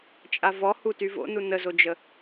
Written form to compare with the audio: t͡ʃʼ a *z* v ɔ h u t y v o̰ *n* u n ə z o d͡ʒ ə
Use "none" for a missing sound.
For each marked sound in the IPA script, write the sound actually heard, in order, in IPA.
none, n

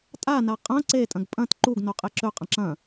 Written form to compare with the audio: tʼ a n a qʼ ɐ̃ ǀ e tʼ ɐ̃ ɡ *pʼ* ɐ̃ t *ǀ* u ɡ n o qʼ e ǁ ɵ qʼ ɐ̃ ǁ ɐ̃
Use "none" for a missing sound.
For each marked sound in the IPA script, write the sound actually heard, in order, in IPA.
pʼ, ǃ

